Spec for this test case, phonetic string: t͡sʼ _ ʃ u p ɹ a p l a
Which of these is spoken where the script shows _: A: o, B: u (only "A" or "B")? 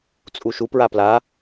B